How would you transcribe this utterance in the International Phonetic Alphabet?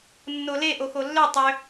nː o l e ʔ o x o lː ø tˤ ø

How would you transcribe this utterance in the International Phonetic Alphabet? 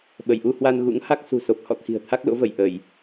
ɓ ə˧˩ j ʔ u˧ h w a˧ n ɣ ṵ˧˥ ŋ h a˦˥ k̚ s ṳ˨˩ s o˨˩ p̚ h ɔ̰˧˨ t̪ʰ i̤˨˩ ə̯ t̪ʰ a˦˥ k̚ l o̰˧˥ v ə˧˩ j ʔ ə˧˩˨ j

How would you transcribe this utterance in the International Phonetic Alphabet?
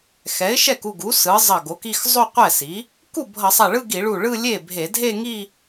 x ɛ˩˥ ɪ̯ ʃ ɛ˥˩ k u˥˩ ɡ u˩˥ s ɯ˩˥ zˤ ʌ˧˩ ɡ o˩˥ k i˥˧ x zˤ o˥˧ qʷ ɛ˥˩ s i˩˥ | k u˥˩ bʱ ʌ˧˩˧ sˤ a˧˩ ɭ ɯ˥˧ ɡ i˧˩˧ ɭ u˧˩ ɭ ɯ˥˧ lʲ e˥˩ bʱ e˧˩˧ dʱ e˥˧ ŋ i˥˧

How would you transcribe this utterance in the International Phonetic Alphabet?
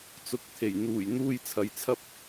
t͡s ʊ˨˥ k̚ t̪ʰ e˨˩ j n̪ uː˨˩ j n̪ uː˧ j t͡sʰ ɐ˨ j t͡sʰ ɐ˥ p̚

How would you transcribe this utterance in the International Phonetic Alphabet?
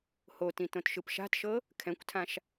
h o t ĩ t õ t ʃ ɯ p ʃ a̤ t ʃ ɤ | kʰ ɛ̃ kʷ tʰ ã ʃ

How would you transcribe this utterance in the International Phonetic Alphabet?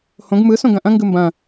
h õ ɡ m ɯ s õ ɡ ɐ̃ ʔ ɐ̃ ŋ ɡ ɯ m b ɐ̃

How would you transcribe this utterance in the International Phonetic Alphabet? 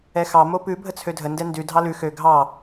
ɛ x ɑ m o p ʉ bʱ ə t͡sʰ ø dʱ ə n d ɛ n d ʉ dʱ ɑ l ʉ x ø ɡʱ ɑ

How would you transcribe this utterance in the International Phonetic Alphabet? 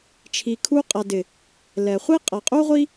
t͡ʃʰ i˨ kʰ u˧ qʼ a˨ d ɪ˨ | l ɛ˨ χʷ i˦ qʼ a˨ qʼ u˦ ʁʷ i˦

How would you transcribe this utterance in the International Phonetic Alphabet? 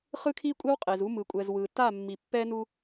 χ ɯ˦ kʰ i˦ kʷʼ ɛ˦ w qʼ e˨ z u˦ m ɯ˨ kʷʼ ɛ˨ z w ɯ˨ t a˦˨ mː i˨ pː ɛ˦ n u˦

